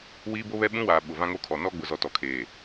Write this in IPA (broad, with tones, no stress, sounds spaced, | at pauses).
w iː˦ b o˦ β ɛ˦ ɓ ũ˦ w aː˨ ɓ ʊ˨ v ã˦ ŋ o˦ kʰ ɔ˨ n ɔ˦ ɡ͡b ʊ˨ z ɔ˨ t ɔ˨ kʰ eː˨